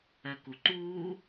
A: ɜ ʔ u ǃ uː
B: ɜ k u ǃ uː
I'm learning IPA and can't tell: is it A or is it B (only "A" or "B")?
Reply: B